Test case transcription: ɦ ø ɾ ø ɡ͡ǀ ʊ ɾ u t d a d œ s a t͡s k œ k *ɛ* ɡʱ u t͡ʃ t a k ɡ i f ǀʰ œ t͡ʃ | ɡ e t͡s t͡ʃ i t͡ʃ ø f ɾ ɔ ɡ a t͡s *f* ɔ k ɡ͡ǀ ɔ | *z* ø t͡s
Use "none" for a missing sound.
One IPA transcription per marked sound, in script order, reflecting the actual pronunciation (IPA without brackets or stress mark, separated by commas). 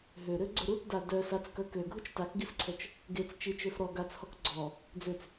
ø, h, d͡z